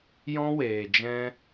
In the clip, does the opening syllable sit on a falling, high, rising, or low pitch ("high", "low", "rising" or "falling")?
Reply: high